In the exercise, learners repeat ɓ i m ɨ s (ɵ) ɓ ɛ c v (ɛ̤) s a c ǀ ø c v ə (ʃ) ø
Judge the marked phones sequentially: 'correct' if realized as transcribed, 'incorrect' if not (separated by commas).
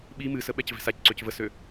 incorrect, correct, incorrect